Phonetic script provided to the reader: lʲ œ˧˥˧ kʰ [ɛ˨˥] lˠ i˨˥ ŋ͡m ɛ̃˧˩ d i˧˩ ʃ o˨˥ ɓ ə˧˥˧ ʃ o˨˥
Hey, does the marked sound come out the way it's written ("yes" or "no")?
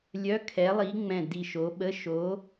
yes